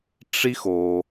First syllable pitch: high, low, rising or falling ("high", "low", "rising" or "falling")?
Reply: high